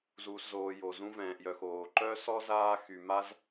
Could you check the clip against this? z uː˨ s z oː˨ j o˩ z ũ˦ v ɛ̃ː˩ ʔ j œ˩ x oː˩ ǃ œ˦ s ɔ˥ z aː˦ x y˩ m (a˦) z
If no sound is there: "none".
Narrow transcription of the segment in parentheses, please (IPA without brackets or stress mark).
a˦